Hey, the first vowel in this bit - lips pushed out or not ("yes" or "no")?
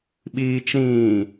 no